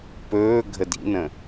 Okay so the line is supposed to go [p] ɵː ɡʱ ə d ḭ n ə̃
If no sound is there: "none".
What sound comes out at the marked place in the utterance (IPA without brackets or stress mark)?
p